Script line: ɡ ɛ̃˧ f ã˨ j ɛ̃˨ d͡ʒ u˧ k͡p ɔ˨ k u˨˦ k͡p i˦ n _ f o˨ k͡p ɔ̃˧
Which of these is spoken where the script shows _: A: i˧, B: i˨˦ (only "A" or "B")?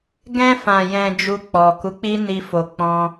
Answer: A